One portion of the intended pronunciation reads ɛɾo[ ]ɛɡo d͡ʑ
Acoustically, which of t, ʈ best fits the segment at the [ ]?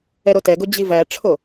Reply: t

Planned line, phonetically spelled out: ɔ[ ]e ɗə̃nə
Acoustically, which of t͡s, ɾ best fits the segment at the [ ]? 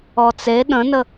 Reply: t͡s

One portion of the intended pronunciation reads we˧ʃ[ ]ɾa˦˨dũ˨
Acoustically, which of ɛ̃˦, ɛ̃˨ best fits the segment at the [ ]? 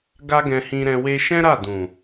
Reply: ɛ̃˦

